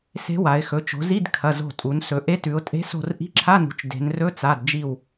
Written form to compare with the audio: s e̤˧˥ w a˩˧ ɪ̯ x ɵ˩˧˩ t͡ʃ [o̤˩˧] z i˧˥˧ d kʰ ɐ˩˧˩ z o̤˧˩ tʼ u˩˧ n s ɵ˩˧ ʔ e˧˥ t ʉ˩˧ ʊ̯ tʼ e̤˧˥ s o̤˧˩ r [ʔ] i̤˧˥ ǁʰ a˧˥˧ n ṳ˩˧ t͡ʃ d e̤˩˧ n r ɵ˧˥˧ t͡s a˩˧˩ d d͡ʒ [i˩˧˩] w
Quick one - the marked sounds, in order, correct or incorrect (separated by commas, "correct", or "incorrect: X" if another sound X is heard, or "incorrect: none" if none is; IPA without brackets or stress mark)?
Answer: correct, correct, incorrect: i˧˩